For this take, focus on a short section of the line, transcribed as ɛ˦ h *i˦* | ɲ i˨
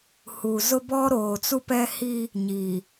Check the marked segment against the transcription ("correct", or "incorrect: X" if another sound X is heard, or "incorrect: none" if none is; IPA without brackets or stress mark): correct